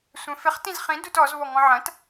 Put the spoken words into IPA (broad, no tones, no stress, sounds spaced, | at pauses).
sʷ ɛ̃ f ɪ χ t ĩ z χ ĩ d u t ɔ z β ɔ ŋ ɔ̃ ʕ ɐ̃ t